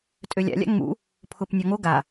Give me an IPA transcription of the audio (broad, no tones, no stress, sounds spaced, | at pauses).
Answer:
tʼ ø lʲ a̰ lʲ a̰ ŋ͡m ṵ | pʰ ʊ p nʲ ɒ ŋ o ɡ a